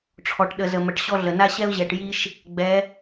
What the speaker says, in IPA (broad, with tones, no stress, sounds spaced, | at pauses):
ʈ͡ʂʰ ɔ˨ ʈ ɗ ə˨ z ə˨ m ə˨ ʈ ɕ ɔ˦ ɮ ə˨ n a˦ ɕ ɛ˦ ʊ̯ ʑ ɛ˨ ʈ j i˦ ʃ | ɡ͡b ɛ˨˦